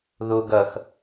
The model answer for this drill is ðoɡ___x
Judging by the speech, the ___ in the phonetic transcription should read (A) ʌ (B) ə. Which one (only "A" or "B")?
A